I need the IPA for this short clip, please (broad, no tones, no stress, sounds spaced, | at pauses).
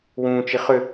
w ũː t͡ʃ i χ ʏ